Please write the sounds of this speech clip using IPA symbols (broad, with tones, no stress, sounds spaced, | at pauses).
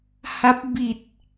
h a˦˥ p̚ b i˨˩ t̚